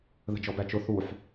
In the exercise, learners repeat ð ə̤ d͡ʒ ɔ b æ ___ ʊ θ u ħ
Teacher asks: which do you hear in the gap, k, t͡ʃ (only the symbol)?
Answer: t͡ʃ